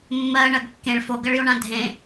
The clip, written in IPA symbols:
mː ɜ ɳ ɜ ɡ kː ẽ ɭ f o ɡ ɜ ɭ j o ɳ ã dʱ ẽ

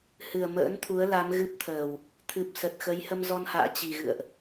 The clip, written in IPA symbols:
h ɨ˨˩ ə̯ m ə̰ː˧˥ n t̪ʰ u˨˦ ə̯ l a˨˦ m ɣ ɨ˦˥ p̚ t̪ʰ əː˨˩ w | t̪ʰ ɨ˨˩ p̚ s ə˨˩ t̚ x ə˨˦ j h ə˧ m z ɔ˧ n h a̰ː˧˨ t͡ɕ i˨˩ ɣ ɨ̰˧˨ ə̯ ʔ

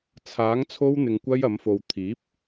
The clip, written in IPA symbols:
t͡sʰ aː˨˥ ŋ t͡sʰ o˥ w n̪ ɪ˧ ŋ kʷ ɐ˥ j ɐ˨˥ m f o˧ w t̪ʰ iː˨˥ p̚

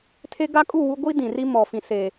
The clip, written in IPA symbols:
tʰ e˦ ɡ a˦ kʼ u˦˨ w u˦ ɡʷ i˦ d ĩ˨ r i˦ m ɔ˨ f ĩ˨ s e˨

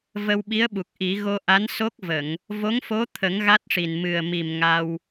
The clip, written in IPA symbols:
v ə˧ w ɓ i˧˥ ə̯ ɓ u˨˩ k̚ ʔ i˨˩˦ ɣ o˧ ʔ a˧˥ n s o˦˥ k̚ v ə˨˩˨ ŋ | v o˧˥ ŋ f o˧˥ t̪ʰ ə˨˩˦ ŋ ɣ a˦˥ t̚ ʂ i˨˩ n m ɨ˨˩ ə̯ m i˨˩ m ŋ a˧ w

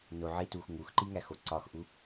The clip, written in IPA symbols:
n o ʕ i t uː x ŋ u x ǃ i ŋ æ x o ǀ ɒ x ʔ u

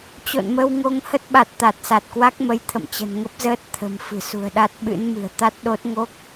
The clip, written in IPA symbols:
t͡ɕ o̰˧˨ n m ə˧ w ŋ o˧ ŋ h ə˦˥ t̚ ɓ a˨˩ t̚ t̪ a˨˩ t̚ s a˨˩ t̚ k w a˦˥ k̚ m ə˨˦ j t̪ʰ ə̰˧˨ m t͡ɕ ə̤˨˩ n ŋ ə˦˥ p̚ z əː˦˥ t̚ t̪ʰ ə̤˨˩ m f ɨ̤˨˩ s ṳ˨˩ ə̯ ɗ a˦˥ t̚ ɓ ɨ̰˧˥ n m ɨ̤˨˩ ə̯ t̪ a˦˥ t̚ ɗ o˦˥ t̚ ŋ o˦˥ k̚

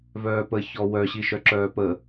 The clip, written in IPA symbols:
v œː p ə ç ɔ w œ ɕ i ʃ œ ǁ œː p ə

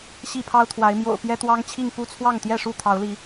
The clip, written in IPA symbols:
ɕ i˥˨ pʰ ɑ˦ ʊ̯ t̪ʰ w a˨˦ ɪ̯ m j o̰˨˩ ʊ̯ p j ɛ˦ t̪ w ɑ˦ ŋ t͡ɕʰ i˥˨ ŋ p u˥˨ t͡sʰ w ɑ˥˨ ŋ t̪ j ɛ˥˨ ʂ u˥˨ t̪ʰ ɑ˨˦ ʊ̯ l i˨˦

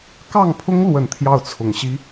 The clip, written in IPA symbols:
k ɑ˥˩ ŋ pʰ ʊ˥ ŋ l w ə˨˩ n t̪ʰ j ɑ˥˩ ʊ̯ t͡sʰ ʊ˨˩ ŋ ɕ i˥

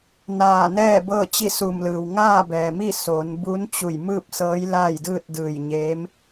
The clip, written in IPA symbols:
n aː˧˩ n ɛː˥˨ b ɤː˥˨ t͡ɕ i˥˨ s u˧˩ m l ɯː˩ w ŋ aː˥˨ b ɛː˩ m i˥˨ s oː˩˧ n b u˧˥ n t͡ɕ u˧˩ j m ɯː˥˨ p̚ s ɤː˧˥ j l aː˥˨ j d ɯː˥˨ t̚ d ɯː˧˩ j ɲ eː˧˥ m

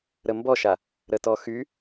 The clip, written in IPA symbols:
ɾ ə m b ɔ ʃ a | ɾ ə t ɔ x y

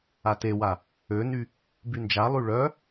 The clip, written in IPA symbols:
a t e w a | ø n y | b y n d͡ʒ a lˠ y ɭ œ

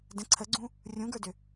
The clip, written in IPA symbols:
d ə̃ ǀʰ ə ɡ͡ǀ ũ | rʲ ũ ɡ ə˞ d ʏ

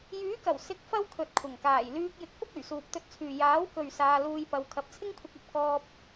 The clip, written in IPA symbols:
j yː˨˥ k ɐ˨˩ w s ɪ˨˥ k̚ f ɐ˧ w kʰ ɵ˨ t̚ kʷʰ ɐ˨˩ ŋ k aː˨˩ j l yː˧ k̚ j ɪ˧ k̚ f ʊ˥ k̚ ɵ˨˩ ɥ s uː˨ p̚ t̪ ɵ˧ t̚ t͡sʰ yː˨ j aː˨˥ w k ɵ˨ ɥ s aː˧ l uː˧ j p ɐ˨˧ w kʰ ɐ˨˥ p̚ t͡sʰ ɪ˥ ŋ kʷʰ ɪ˧ k̚ ɐ˨ p̚ k ɔː˧ p̚

